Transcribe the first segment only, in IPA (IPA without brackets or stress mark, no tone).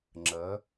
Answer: ŋ͡ǁ